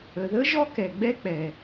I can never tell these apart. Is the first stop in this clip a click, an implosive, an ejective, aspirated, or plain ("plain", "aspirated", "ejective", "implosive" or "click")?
plain